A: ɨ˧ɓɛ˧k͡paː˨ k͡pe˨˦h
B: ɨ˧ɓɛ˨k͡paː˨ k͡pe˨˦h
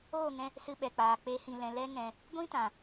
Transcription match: B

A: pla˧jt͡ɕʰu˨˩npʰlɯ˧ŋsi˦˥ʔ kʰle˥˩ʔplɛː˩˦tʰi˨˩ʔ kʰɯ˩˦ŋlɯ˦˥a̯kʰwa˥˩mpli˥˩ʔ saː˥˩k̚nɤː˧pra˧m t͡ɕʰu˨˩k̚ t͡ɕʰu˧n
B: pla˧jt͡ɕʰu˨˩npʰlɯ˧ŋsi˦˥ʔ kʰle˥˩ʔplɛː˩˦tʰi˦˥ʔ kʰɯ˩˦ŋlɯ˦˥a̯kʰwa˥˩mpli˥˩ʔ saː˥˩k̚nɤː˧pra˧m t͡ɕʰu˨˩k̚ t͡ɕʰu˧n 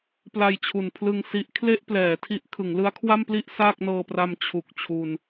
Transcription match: B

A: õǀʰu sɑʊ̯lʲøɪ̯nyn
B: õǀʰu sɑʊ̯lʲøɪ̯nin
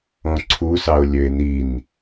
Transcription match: B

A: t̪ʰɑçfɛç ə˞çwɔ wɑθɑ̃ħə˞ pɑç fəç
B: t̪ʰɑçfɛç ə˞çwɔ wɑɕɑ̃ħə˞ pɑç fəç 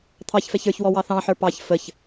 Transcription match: A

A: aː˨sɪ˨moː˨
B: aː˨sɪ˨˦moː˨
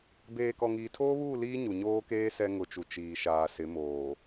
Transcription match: B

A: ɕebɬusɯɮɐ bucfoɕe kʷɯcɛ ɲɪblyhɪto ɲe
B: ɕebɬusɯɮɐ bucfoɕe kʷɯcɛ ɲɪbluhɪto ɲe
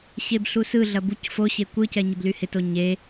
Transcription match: A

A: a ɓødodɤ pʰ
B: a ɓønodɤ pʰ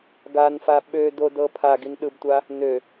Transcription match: A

